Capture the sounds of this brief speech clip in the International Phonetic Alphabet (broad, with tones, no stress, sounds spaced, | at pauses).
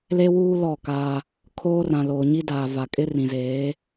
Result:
l e˦ w uː˦ l ɔ˦˨ k aː˦ | kʰ oː˦ r ã˨ l oː˨ ɲ i˦ d aː˨ v a˨ kʼ ɪ˦ r ĩ˨ z eː˨˦